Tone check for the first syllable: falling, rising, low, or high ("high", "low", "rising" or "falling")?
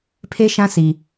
high